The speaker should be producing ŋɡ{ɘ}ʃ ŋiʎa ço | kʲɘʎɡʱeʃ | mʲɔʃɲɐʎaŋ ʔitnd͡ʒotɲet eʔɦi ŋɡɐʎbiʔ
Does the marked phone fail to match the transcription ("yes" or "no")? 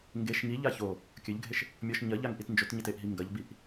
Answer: yes